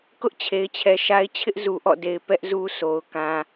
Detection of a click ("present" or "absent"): absent